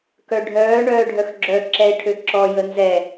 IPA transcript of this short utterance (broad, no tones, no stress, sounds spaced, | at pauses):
k œ ɖʱ œː ɳ œː ɖʱ œ x ɡ͡ǁ œ ǁ ɛ ɪ̯ ʈʰ ø ǁ ɔ j ə n z ɛ